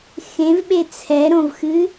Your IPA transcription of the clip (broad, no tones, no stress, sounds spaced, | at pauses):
x ẽ v ɓ e t͡sʰ ɛ ɾ õ v x ɨ